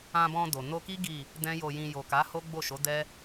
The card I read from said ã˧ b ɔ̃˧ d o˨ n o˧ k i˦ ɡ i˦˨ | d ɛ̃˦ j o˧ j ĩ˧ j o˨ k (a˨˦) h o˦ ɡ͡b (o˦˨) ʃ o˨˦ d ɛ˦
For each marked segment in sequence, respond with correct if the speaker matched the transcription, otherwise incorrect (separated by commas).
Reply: correct, correct